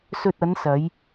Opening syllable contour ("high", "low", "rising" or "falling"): low